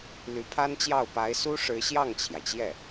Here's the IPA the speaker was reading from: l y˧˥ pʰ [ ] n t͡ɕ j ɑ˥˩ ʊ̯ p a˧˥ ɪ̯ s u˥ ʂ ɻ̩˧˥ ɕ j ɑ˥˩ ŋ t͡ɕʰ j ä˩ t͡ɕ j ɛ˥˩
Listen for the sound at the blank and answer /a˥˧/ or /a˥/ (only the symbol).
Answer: a˥